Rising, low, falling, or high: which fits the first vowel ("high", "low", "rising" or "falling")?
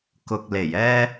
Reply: low